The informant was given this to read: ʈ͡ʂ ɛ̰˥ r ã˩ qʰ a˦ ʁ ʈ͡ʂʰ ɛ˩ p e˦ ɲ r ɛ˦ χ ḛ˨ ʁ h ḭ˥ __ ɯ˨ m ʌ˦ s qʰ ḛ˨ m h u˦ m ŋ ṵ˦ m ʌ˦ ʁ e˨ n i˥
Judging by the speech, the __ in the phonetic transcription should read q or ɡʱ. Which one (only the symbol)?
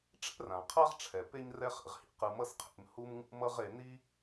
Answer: q